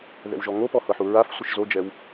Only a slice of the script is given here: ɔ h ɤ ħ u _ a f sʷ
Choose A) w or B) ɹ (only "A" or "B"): B